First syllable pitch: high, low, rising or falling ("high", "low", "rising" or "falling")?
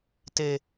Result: high